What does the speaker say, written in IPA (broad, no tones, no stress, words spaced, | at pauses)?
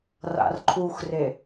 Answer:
ra̰rǃʰuxre